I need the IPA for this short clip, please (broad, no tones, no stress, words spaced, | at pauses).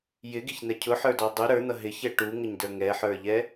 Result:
jɪɡiçn̪ɛ cʰʊħə˞dɔ dˤu ɾə˞n̪ʌ ɦɪçɛ ʈuŋəɲdə˞ ŋɛħə˞ʎɛ